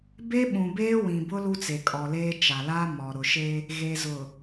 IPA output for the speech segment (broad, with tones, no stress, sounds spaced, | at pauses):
b e˦ ɓ ũ˨ b eː˦ w ĩ˨ b ʊ˦ l u˦ t͡s e˨ kʼ ɔ˨ l eː˦ t͡ʃ a˨ l a˦ m ɔ˨ ɾ ʊ˨ ʃ e˦ | ɣ e˨ z ʊ˨